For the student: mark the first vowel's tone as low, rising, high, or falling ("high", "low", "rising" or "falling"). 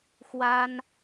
high